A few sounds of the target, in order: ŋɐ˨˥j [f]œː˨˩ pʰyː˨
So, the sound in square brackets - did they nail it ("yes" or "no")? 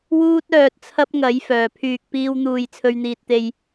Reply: yes